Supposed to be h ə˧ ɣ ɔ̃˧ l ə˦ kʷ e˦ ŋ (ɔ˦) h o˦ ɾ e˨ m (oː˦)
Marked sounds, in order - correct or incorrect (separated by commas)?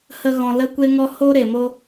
correct, incorrect